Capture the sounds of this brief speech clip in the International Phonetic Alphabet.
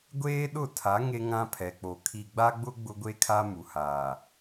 ɡʷeː˦ɗʊ˦˨tʰa˨˦ ŋe˦ŋã˦pʰɛ˨k͡po˨ kʰi˨ɡ͡ba˦ɡ͡bʊ˦ ɡ͡bʊ˦ɡʷe˦kʰa˦ mu˨haː˨

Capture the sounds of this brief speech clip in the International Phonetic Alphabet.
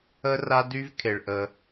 ə˦ra˦dy˦vkʰe˨ɭ ʔə˧

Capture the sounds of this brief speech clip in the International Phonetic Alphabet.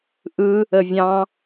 ʔɯ | əvʲɑ̃

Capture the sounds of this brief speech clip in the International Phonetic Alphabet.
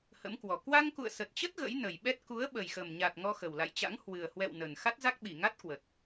hə̰˧˥mkwɔ˨˩ kwa˧ŋkṵ˧˨ə̯sə˨˩t̚t͡ɕə˦˥t̚ ɣə̰˧˥jnə˨˩jɓɛ˦˥t̚ ku˨˦ə̯ɓə˨˩jxə˨˩mɲa˨˩t̚ ŋɔ˧xə˨˩wla̰˧˨jt͡ɕa̰˧˥ŋ hwɨ˨˩ə̯hwɛ̰˧˨w nə˨˩n xa˦˥t̚za˦˥k̚ɓi˧˩ ŋa˦˥t̚kwə˨˩t̚

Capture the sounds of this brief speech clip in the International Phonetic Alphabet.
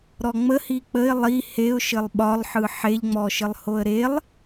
ɾɔŋ͡mə hik͡pəɪ̯ lˠi heʊ̯ʃɘlˠ ɓɒlˠħɯ ħeʎŋ͡mɔʃɘlˠ hoə̯ɾelˠ

